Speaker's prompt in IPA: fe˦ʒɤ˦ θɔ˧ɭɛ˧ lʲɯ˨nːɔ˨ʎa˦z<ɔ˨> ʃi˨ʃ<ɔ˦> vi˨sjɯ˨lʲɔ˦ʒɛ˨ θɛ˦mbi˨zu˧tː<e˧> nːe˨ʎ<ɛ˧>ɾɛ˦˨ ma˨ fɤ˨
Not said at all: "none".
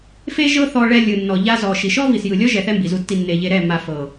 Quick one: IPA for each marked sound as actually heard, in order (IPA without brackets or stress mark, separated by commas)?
ɔ˨, ɔ˦, i˧, e˧